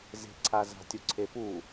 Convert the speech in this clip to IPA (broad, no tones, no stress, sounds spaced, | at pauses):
z e̤ ǀʰ a z a̤ tʲ u ǀʰ e p u